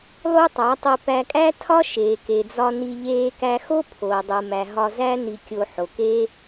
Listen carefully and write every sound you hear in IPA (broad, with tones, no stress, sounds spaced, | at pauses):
lˠ u˦ tˤ æ˨˦ tˤ i˧ p æ˧ kʼ æ˦ tʰ ɒ˦ ʃ eː˨ k e˨ d͡z ɒ˧ n i˧ ʎ eː˦ k æ˦ x o˦ pʰ oː˨ dˤ u˨ m æ˨ ɦ ɒ˧ z æ˦ n i˧ kʲ o˧ ħ o˨ k eː˦